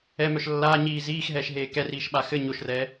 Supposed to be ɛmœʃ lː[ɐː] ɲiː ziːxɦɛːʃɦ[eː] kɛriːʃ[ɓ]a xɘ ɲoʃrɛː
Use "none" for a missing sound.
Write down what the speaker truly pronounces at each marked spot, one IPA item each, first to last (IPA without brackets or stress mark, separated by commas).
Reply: aː, eː, ɓ